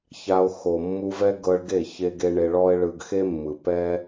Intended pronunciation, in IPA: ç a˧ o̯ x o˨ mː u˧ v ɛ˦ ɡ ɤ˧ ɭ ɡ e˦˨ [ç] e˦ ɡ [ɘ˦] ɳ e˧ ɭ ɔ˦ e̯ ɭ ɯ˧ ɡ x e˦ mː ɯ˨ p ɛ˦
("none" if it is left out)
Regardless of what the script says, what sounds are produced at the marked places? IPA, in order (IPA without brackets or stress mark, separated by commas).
ç, e˦